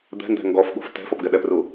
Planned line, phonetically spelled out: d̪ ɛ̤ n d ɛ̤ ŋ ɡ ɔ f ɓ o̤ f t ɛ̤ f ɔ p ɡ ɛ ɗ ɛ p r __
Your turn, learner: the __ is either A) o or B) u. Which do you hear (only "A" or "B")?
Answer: B